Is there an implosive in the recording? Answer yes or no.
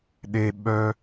yes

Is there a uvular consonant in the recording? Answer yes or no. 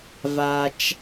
no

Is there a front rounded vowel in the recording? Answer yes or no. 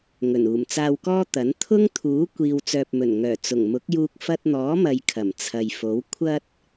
yes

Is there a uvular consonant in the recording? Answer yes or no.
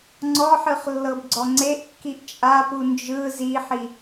yes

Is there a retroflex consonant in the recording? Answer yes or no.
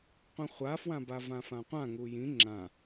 no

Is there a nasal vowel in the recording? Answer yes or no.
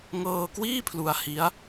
no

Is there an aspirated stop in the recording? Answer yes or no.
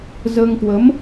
no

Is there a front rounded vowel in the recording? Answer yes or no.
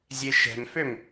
yes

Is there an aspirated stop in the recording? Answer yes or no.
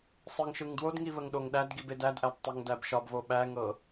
no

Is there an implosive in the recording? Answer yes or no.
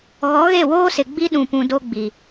yes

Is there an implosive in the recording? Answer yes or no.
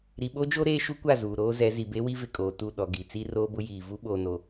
yes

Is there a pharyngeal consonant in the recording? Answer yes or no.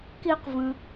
no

